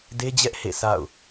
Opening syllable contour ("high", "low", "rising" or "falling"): high